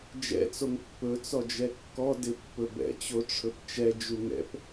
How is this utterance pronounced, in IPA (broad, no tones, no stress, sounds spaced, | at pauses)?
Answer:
d͡ʒ ɛ̰ t͡s o ŋ pː ɵ t͡s ɔ d͡ʒ ɛ kː ɔ d ɪ pː ɵ b ɛ̰ t͡ɕ o ʈ͡ʂʰ ɵ p t͡ʃ ɛ d͡ʒ u ŋ ɛ̰ p